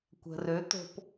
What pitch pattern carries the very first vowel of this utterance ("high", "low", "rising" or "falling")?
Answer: low